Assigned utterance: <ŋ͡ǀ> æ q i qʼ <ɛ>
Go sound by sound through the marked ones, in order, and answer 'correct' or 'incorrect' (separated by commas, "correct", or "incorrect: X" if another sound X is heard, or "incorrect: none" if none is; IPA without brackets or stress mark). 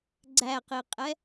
incorrect: ɡ͡ǀ, correct